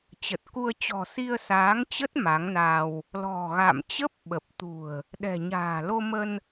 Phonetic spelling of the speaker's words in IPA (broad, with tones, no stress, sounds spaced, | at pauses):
t͡ɕ ə˨˩ t̚ k u˧ ə̯ t͡ɕ ɔ̤˨˩ s i˧ ə̯ s aː˨˦ ŋ t͡ɕ ə˦˥ t̚ m a˨˦ ŋ n a˧ w | l ɔ̤˨˩ ɣ a̰˧˨ m t͡ɕ ə˦˥ p̚ ɓ ə˨˩ p̚ t̪ ṳ˨˩ ə̯ | ɗ ɛ̤˨˩ ɲ a̤ː˨˩ l o˧ m ə˧ n